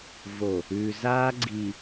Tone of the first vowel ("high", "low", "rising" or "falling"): low